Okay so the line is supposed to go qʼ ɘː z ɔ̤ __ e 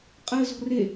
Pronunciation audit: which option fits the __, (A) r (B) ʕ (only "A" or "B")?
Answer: A